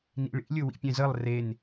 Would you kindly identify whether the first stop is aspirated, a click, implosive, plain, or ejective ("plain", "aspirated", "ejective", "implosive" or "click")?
plain